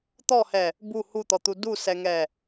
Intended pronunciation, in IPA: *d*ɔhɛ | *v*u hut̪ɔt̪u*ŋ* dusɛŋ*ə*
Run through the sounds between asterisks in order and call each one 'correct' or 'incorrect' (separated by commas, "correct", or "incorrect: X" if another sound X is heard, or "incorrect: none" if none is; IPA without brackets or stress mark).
incorrect: t̪, incorrect: b, incorrect: none, incorrect: ɛ